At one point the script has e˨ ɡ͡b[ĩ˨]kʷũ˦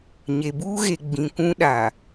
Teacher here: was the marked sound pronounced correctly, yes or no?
yes